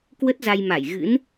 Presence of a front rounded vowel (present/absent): absent